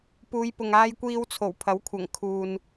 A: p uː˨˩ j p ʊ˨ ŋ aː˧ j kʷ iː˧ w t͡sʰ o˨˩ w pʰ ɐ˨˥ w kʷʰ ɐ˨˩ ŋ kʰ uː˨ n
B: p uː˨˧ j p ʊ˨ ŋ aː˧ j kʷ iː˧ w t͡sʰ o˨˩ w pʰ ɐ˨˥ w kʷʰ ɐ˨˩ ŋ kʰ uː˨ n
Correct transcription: B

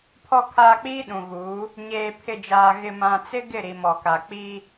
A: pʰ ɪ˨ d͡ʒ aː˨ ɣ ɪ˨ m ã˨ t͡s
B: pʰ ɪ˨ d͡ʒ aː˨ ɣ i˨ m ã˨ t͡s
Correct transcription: A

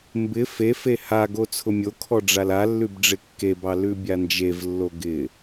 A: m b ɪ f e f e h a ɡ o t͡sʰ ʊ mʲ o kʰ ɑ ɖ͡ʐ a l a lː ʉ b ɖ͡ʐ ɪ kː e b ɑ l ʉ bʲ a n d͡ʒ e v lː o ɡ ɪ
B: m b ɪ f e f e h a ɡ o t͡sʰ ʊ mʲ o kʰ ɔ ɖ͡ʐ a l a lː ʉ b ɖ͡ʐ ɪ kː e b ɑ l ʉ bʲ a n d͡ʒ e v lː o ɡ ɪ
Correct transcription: B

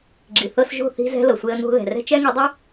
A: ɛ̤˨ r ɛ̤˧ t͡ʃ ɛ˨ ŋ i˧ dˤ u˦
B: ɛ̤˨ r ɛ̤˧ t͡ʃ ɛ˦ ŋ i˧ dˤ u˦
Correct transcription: B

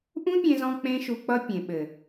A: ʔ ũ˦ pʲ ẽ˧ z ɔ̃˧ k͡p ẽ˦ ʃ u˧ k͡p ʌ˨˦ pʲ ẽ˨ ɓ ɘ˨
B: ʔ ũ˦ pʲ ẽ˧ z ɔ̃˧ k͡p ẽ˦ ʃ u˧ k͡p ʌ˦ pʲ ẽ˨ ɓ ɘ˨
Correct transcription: B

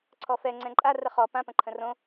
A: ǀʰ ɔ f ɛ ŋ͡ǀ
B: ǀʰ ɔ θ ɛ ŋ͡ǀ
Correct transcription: A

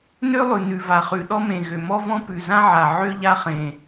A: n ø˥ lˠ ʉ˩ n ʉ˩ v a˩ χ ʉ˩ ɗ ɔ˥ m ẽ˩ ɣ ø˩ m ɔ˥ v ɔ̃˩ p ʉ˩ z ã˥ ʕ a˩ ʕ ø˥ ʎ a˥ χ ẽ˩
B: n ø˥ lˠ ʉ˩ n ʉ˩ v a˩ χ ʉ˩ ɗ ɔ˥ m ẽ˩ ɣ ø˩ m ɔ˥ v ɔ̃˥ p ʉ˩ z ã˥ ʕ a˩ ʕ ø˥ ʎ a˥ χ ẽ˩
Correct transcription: B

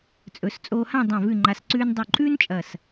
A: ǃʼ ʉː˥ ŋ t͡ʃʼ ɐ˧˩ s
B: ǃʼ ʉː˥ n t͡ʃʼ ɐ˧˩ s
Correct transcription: B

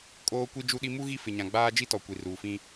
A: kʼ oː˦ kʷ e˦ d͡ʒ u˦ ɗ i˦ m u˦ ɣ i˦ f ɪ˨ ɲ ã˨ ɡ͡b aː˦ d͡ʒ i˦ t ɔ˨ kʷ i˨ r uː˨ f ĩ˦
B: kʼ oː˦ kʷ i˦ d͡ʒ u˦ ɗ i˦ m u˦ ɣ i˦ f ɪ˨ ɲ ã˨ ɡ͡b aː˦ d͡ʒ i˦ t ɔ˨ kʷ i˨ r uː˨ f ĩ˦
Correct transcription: B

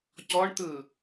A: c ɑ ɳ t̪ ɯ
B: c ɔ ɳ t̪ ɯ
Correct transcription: B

